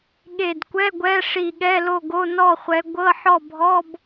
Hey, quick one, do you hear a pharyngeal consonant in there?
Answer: yes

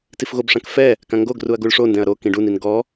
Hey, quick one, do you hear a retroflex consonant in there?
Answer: yes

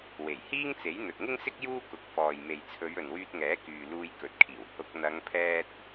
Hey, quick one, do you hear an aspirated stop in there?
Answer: yes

